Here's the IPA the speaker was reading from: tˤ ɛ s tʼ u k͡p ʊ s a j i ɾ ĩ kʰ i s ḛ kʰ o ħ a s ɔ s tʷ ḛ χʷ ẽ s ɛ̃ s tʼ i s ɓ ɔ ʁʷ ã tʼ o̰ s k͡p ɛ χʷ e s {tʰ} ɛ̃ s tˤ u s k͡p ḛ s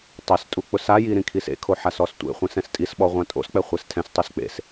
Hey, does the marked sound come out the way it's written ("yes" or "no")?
yes